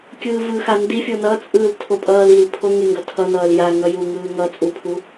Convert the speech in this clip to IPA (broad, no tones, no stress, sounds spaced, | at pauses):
kʲ ɯː v ɯ x a n d i fʲ o n ʌ t͡sʼ ɯː l tʰ o pʼ ʌː l i l pʰ o ŋ e ŋ ɡ ʌ tʰ ʌ n ʌː l j a ŋ ʌ j u ŋ ɯː ŋ ʌ t͡sʼ u pʰ u